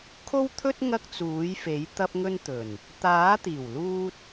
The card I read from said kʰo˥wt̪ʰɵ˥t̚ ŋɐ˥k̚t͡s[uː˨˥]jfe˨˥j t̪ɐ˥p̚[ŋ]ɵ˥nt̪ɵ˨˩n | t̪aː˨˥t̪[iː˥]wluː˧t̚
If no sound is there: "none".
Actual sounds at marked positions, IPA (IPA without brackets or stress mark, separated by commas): uː˨˥, ŋ, iː˨˩